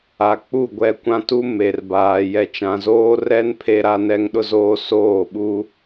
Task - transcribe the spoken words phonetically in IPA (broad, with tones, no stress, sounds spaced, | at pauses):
a˨ k͡p u˦˨ ɡʷ ɛ˦˨ kʷ ã˦ t u˦ m e˨ r b aː˨ j ɛ˨ t͡ʃ ã˨ z oː˦ r ɛ˦ n pʰ e˦ ɾ a˦ n ɛ˦ ŋ ɗ ʊ˦ z oː˦ s oː˦˨ ɓ u˦